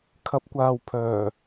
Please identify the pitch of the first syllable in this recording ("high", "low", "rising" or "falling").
rising